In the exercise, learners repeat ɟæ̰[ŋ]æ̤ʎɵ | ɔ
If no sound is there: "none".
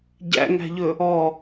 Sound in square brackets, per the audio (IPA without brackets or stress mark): ŋ